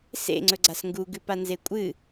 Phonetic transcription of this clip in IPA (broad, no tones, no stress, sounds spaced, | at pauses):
s ḛ ŋ͡ǀ ɵ ɡ͡ǀ a s ŋ ɡ u ɡ ʉ p a n z e kʷʼ ɨ